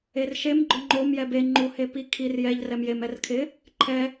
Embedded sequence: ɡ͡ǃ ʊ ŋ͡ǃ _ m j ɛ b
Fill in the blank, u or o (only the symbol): o